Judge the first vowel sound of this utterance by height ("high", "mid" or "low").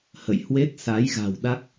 mid